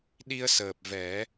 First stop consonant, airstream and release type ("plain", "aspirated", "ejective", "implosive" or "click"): implosive